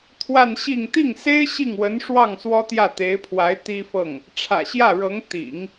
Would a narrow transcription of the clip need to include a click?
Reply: no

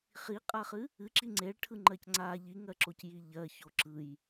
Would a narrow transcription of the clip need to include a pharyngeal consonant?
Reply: no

